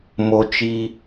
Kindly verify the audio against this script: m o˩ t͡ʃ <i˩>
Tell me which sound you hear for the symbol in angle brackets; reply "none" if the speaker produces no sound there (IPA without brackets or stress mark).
i˩